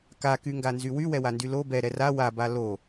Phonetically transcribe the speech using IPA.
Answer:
k a k y ŋ ɡ a n z y w y w ɛ w a n d y l o b ɛ ɾ ɛ r a w a b a l o

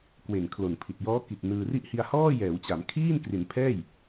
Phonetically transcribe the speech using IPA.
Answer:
k w e˨˩ n kʰ l o˨˩ n pʰ i˨˩ t̚ j ɔː˦˥ k i˨˩ t̚ n ɯː˧ r i˦˥ ʔ h i˧ a̯ h ɔː˥˩ j ɛː˩˦ w t͡ɕ a˩˦ m kʰ iː˥˩ n k r i˩˦ n pʰ ɛː˥˩ j

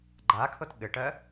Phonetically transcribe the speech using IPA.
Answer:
ɡ͡ǃ a kʰ ɤ t ɠ ɘ ʈ ɜ

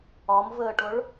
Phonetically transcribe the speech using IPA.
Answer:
ɒ m v əː ʈ ʊ ɭ

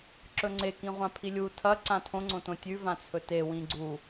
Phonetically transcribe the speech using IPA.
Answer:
ǁ ɵ ŋ͡ǀ e k ĩ ʁʷ ã pʰ i lʲ u tʰ ɐ ǀ ã tʰ õ ŋ͡ǀ õ t õ tʲ ʉ v ã t͡sʰ ɵ t e w ĩ ɡ͡ǀ u

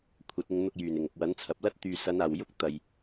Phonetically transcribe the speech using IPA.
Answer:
kʷʰ ɐ˨˥ t̚ ɪ˧ ŋ n̪ ʊ˧ k̚ j yː˨˩ n ɪ˨˩ ŋ ʊ˨ k̚ w ɐ˨˥ n t͡sʰ ɐ˨ p̚ l ɐ˥ t̚ t̪ yː˨ s ɐ˨˧ n aː˨˩ w j ʊ˥ k̚ t̪ ɐ˨ j

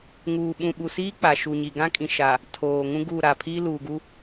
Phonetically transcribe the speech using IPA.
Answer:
ŋ uː˨ ɓ ũ˨ ɓ u˨ s iː˦ k͡p a˨ ʃ u˨ ɲ i˨ ɡ ã˦ kʼ ĩ˨ ʃ a˨ | tʰ oː˨ ŋ ũ˦ ɡ u˦˨ ɾ a˨ pʰ iː˦ l uː˨ ɡ u˦

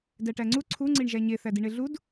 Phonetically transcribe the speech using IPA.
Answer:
d æ ʈ æ ŋ͡ǀ u ǀʰ u ŋ͡ǀ i ɳ ʒ æ ɲ e θ æ d i ɳ e ɮ u d

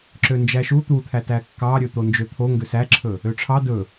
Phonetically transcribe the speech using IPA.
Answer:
ǁ ø n d͡ʒ æ ʃ u t̪ u t̪ʰ æ t æ kː ɑ ɾʲ ɵ t̪ o n d͡ʒ ø t̪ʰ o ŋ ɡ ø s æ ǁʰ ɵ | ø ʈ͡ʂʰ ɑ d ɵ

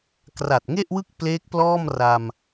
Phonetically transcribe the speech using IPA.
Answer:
k r a˨˩ t̚ ŋ e˥˩ ʔ w ɯ˥˩ k̚ p l eː˦˥ k̚ p l ɔː˥˩ m r a˧ m

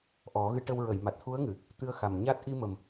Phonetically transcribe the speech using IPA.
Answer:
ʔ ɔ˨˩˦ ɣ ɨ˧ ʈ ə˧ w ɹ ə˨˩˨ j m a˨˩ t̚ t̪ʰ u˧˥ ə̯ ŋ ɨ˨˩˨ | t̪ ɨ˧ ə̯ x a˨˩ m ɲ a˦˥ t̚ ʔ i˧ m ə˨˩ m

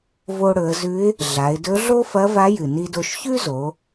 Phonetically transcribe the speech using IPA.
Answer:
v o˧ ɽ ɵ˩˧ ə̯ z ʉ˧˥ ɪ̯ | ɮ a˩˧ ɪ̯ d ɵ˧˥ ɮ o˥ f ɐ˧˥ v a˧˥ j ɨ˩ n i˧ d o˧ ʃ ç ʉ˥ z o˩˧

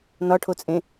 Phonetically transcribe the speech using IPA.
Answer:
n ɒ ʈʰ o t͡sʼ ẽ

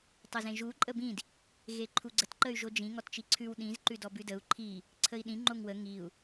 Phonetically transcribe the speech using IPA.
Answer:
tˤ ə z ẽ ʒ u ǃʼ ə b ĩ d | ɣ e ǃʰ u ɡ͡ǀ ə t ǃ ə y̯ ʒ o d͡ʒ ĩ ŋ ɔ t t͡ʃ i ǀʰ ʉ w ɗ ĩ z ǃ ʉ d ɔ b ʉ d ə u̯ ǃʰ i | ǀʰ ə i̯ ɗ ĩ ŋ͡ǃ o ŋ w ə ŋ i u̯

